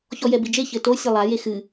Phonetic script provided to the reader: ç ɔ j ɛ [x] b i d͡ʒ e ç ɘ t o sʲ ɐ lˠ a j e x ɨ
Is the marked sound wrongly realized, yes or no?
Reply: yes